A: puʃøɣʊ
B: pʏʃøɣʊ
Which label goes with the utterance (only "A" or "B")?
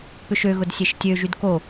B